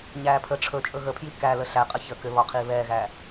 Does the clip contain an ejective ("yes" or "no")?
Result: yes